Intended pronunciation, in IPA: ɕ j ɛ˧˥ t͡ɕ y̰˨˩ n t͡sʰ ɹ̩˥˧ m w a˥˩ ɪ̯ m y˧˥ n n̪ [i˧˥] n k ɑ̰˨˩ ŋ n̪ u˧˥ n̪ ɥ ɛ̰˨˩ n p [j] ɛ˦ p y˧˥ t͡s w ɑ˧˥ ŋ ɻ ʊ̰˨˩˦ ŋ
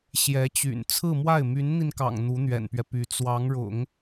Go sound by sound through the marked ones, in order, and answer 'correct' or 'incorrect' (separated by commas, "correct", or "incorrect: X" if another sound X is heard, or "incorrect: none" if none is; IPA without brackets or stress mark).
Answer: incorrect: i˧, incorrect: ɥ